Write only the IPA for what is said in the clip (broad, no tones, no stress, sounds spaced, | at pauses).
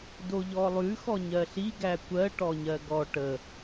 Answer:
d o ʎ ɔ lˠ ʉ x ɔ ɲ ɜ ɬ i ɡ æ kʷ ɜ ʈ ɔ ɲ ɜ ɡ ɔ ʈ ə